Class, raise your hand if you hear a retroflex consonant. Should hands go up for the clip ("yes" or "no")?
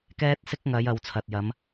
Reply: no